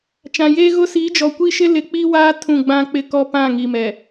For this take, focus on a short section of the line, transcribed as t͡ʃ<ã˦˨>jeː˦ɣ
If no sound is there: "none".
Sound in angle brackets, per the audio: ã˨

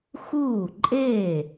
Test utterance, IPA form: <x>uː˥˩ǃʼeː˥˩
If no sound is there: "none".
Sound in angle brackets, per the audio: x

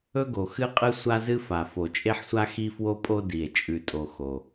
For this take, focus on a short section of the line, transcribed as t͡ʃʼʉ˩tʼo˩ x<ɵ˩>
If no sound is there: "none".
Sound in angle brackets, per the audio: o˩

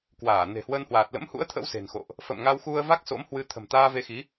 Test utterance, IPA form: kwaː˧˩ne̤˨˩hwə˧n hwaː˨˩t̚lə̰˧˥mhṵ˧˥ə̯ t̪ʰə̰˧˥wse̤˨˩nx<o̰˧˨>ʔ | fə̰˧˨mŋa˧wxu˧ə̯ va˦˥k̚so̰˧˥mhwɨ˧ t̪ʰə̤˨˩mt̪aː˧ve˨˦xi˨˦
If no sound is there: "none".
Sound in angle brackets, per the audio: o̰˧˨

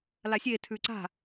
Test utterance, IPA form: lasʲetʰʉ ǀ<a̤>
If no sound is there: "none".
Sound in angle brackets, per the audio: a̤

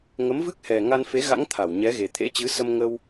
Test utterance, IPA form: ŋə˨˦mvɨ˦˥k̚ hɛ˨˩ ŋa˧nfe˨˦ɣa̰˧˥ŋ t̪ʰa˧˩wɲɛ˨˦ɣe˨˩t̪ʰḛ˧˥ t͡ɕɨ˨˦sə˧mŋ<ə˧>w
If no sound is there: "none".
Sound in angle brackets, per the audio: ə˧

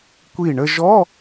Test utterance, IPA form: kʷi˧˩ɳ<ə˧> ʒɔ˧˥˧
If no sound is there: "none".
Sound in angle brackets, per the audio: ə˧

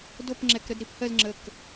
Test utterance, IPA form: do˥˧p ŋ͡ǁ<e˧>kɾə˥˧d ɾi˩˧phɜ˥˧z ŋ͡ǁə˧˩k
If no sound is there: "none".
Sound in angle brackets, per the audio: ɛ˧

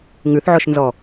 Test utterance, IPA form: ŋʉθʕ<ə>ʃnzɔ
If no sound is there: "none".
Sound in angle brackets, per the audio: ɔ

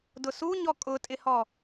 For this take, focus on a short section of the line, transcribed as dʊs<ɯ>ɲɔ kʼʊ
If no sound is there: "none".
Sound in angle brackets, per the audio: u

